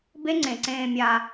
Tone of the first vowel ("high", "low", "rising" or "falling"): high